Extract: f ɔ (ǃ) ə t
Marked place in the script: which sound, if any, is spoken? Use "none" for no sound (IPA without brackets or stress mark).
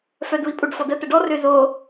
d